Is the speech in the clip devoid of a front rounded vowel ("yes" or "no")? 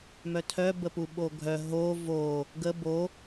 no